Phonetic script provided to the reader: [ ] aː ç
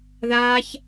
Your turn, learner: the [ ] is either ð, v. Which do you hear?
ð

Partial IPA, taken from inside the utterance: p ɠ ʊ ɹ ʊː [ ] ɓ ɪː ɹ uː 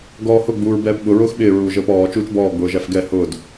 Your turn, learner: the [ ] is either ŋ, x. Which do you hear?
x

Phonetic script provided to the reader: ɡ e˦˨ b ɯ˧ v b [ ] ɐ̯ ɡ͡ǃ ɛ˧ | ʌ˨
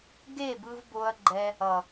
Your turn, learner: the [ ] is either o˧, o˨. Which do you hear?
o˧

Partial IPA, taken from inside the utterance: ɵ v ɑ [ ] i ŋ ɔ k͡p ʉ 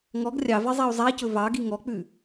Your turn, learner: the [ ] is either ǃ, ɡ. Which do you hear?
ɡ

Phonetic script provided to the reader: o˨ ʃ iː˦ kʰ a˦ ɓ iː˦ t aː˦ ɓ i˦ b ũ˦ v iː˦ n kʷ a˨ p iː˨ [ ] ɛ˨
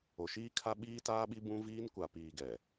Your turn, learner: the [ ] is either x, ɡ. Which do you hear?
ɡ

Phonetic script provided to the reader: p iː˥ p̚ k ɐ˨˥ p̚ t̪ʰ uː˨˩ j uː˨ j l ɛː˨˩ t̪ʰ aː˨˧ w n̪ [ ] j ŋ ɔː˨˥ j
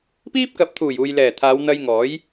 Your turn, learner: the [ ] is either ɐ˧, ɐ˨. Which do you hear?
ɐ˧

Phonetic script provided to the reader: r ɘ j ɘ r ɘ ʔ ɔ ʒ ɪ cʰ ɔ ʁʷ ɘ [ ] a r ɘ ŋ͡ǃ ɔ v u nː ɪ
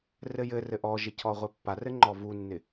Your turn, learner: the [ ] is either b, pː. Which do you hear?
pː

